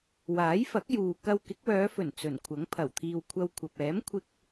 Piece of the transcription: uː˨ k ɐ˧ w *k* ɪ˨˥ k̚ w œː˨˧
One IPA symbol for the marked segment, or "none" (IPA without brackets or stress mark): k